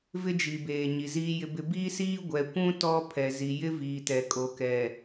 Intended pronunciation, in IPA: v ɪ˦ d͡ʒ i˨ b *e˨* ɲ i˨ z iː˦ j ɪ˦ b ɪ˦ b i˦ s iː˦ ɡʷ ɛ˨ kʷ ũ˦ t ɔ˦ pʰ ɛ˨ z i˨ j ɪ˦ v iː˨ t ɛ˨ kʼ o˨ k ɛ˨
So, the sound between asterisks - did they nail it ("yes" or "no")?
no